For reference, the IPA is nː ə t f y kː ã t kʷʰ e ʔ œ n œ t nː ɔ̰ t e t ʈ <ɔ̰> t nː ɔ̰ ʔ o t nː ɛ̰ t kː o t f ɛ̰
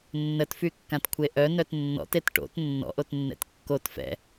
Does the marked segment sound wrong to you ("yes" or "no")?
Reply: yes